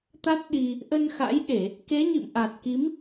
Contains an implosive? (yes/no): yes